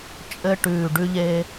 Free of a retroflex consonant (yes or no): no